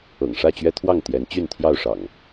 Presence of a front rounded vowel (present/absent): present